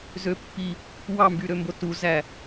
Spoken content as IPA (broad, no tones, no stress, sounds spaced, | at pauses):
z ø pː i | w ɑ m b y ɾ ø m b o t u z æ